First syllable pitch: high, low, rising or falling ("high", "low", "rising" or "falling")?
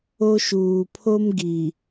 high